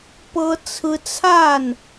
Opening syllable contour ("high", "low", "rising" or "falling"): high